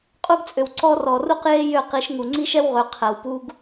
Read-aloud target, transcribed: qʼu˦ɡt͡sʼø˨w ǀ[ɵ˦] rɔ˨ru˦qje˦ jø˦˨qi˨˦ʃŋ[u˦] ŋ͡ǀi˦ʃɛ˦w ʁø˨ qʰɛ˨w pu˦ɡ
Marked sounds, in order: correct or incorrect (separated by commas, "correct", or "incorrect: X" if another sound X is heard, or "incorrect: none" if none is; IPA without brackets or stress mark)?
incorrect: ɔ˦, incorrect: u˨